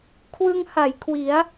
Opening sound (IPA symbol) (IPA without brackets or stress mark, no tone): kʰ